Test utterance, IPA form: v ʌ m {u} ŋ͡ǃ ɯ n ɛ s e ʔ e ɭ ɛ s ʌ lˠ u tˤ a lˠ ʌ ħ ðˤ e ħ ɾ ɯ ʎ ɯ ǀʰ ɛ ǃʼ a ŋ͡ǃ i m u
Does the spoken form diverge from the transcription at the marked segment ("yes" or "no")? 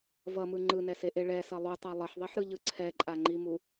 yes